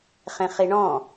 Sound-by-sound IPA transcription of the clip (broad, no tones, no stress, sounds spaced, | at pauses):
χ ẽ χ i ɳ ɔ̃